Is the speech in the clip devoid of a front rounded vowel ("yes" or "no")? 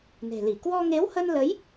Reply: yes